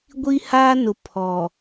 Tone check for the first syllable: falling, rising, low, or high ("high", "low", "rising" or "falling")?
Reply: high